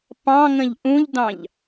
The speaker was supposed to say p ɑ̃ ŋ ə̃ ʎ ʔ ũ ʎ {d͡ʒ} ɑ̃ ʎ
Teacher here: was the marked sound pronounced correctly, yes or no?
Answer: no